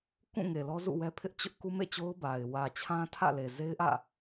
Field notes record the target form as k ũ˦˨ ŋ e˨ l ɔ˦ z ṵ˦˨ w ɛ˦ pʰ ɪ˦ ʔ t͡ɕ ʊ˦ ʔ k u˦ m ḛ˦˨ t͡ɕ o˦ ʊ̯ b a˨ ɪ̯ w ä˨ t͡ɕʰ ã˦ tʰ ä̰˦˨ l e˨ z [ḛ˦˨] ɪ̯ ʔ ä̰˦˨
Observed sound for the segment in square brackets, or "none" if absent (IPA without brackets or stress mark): e˦